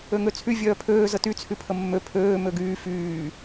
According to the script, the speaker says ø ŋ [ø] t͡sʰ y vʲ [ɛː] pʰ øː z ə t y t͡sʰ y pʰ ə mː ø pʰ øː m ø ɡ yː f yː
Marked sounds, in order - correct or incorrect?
correct, incorrect: œː

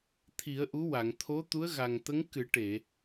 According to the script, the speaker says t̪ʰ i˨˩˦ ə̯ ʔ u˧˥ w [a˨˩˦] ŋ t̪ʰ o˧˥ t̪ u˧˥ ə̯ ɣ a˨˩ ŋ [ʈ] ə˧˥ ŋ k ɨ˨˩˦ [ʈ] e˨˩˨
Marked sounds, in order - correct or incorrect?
incorrect: a˨˩˨, incorrect: t̪, correct

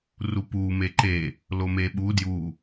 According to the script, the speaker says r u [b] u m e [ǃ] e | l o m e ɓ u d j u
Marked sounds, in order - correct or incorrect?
incorrect: p, correct

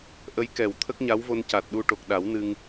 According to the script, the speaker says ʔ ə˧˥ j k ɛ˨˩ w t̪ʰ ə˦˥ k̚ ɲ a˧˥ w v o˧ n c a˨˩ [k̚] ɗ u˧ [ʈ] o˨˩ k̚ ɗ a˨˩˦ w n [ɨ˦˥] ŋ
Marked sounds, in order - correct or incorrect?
incorrect: t̚, correct, incorrect: ɨ˧

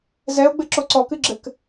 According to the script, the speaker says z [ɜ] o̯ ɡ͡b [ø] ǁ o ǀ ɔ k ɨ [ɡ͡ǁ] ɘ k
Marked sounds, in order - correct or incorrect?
incorrect: ɛ, incorrect: ɘ, correct

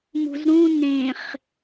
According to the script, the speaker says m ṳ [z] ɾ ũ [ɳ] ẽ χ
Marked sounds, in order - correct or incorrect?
correct, incorrect: n

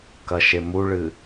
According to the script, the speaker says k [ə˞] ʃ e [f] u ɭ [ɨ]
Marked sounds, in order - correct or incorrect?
incorrect: ɐ, incorrect: m, correct

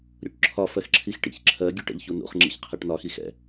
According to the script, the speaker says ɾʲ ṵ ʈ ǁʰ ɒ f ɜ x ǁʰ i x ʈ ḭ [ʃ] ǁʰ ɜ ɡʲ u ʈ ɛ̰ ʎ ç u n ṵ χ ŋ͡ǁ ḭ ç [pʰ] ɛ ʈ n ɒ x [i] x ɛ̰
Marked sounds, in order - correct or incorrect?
incorrect: ç, incorrect: qʰ, correct

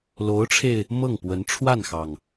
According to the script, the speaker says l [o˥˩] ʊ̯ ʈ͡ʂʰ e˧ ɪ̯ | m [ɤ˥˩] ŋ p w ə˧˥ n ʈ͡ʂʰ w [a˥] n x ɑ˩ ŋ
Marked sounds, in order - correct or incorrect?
incorrect: o˧˥, correct, incorrect: a˥˩

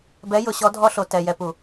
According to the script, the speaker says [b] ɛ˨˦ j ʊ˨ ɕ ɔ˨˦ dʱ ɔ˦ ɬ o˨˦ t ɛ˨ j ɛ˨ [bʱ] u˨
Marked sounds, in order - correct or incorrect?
correct, incorrect: p

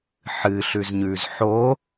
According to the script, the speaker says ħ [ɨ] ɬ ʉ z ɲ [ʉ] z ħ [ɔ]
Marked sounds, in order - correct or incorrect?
correct, correct, incorrect: o

